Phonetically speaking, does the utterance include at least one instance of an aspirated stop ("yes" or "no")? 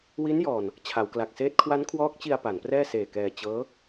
yes